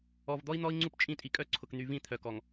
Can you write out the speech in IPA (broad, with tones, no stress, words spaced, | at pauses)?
ɔ˨vd̪ɔ˦i̯n̪ɔ˦i̯ ŋ͡ǀu˦pt͡ʃʼĩ˦˨tʼi˨kʼœ˦ ǀʰʊ˨kn̪y˨vĩ˦˨ t̪ʰœ˨kɔ˨ŋ